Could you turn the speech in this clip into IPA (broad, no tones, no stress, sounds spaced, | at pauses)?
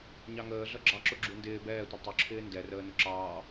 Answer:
ɲ ɑ ŋ əː ɮ ʌ ɡ͡ǁ ɑ ǁ ʊ ɡ͡ǁ u n d ɪː b ɛː tʷ ʌ tˤ ʊ ǁʰ ɪː n d ɛ r əː n ʊ ǁ ɑː